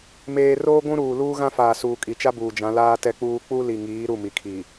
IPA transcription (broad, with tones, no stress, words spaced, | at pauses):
meː˨roː˦ ɡʷũ˦ɾuː˨ luː˦ɣã˦ faː˨suː˨kʼi˨t͡ʃa˦ buː˨d͡ʒã˨˦ laː˦tɛ˦k͡puː˦ k͡pu˦ li˨ŋiː˨˦ ɾu˦˨mi˨ kʰiː˨